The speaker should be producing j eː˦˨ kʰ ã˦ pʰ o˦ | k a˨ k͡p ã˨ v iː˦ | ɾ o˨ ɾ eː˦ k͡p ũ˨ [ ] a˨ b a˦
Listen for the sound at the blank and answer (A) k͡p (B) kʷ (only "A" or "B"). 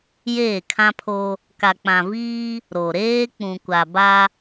B